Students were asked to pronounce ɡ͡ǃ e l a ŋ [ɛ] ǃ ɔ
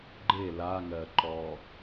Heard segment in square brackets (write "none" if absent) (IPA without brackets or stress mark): ɜ